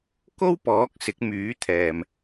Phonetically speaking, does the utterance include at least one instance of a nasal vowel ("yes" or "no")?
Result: no